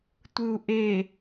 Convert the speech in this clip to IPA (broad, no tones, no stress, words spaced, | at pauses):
tʷɯu̯ʔe